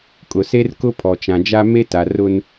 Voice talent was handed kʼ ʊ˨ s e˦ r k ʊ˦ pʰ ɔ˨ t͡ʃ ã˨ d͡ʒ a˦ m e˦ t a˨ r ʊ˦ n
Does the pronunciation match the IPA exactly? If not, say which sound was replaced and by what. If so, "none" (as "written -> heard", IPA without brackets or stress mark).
none